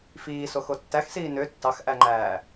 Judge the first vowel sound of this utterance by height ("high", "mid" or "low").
high